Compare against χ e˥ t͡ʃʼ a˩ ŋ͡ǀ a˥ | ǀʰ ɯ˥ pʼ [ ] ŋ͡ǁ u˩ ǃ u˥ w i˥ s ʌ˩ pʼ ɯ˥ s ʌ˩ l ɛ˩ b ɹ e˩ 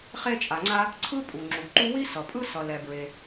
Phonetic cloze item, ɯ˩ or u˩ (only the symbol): u˩